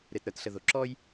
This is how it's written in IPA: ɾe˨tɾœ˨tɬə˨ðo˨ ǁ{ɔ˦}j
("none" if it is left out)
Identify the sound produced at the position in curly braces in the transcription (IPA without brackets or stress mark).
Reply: ɔ˦